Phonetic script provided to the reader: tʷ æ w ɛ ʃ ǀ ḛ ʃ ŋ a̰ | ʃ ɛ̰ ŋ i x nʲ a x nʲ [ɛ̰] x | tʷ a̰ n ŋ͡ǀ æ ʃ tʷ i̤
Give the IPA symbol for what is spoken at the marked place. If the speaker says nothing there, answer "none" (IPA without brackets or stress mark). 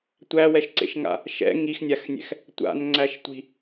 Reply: ɛ̰